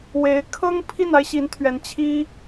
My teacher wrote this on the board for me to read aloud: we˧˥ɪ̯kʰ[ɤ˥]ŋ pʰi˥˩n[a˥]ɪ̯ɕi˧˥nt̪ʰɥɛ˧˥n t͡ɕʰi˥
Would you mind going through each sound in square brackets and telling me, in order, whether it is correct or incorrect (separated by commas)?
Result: correct, correct